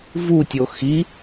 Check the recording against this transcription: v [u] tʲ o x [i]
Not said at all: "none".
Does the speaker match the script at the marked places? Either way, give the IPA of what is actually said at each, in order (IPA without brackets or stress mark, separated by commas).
u, i